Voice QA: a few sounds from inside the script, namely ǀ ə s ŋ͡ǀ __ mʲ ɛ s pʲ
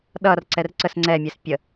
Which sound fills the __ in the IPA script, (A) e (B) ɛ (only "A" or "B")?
B